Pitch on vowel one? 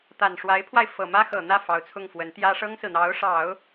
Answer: low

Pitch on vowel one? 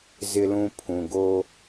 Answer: high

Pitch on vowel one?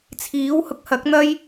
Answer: rising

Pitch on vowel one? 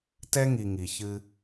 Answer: high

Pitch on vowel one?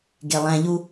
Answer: low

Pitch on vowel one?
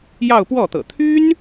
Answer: falling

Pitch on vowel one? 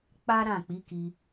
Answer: high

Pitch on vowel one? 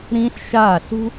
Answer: high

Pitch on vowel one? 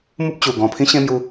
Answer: high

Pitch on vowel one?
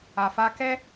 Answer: low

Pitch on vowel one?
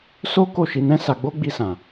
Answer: high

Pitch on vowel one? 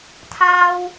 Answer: high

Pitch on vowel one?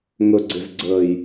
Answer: low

